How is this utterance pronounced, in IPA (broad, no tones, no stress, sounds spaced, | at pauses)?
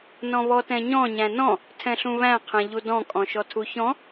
n ɔ̃ β ɔ t ɛ̃ ɲ ɔ̃ ɲ æ̃ n ɔ̃ | tʰ ɛ̃ ɬ ũ β æ̃ qʰ ɛ̃ ʎ u d ɔ̃ kʼ ɔ̃ ʃ ɔ tʰ u ç ɔ̃